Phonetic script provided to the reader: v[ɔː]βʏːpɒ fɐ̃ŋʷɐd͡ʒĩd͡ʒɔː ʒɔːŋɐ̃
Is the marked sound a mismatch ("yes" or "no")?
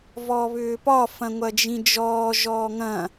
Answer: no